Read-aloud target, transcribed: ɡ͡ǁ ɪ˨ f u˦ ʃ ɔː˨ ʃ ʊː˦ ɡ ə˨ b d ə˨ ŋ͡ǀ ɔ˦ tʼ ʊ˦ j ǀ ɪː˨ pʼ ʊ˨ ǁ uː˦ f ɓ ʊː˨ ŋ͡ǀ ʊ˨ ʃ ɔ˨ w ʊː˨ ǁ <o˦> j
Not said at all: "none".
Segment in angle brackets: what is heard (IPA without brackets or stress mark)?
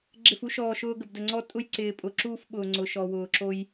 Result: o˦